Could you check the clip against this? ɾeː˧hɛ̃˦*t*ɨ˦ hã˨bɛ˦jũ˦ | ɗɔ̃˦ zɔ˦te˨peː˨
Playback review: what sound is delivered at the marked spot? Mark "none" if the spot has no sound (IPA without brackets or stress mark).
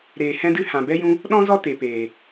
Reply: d